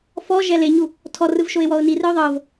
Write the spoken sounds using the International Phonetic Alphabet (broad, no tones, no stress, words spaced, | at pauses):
fɔʒɛ leɲu | tʰɔrɯvʃoɪ̯wɔʊ̯ nirɯʊ̯ ðˤɤv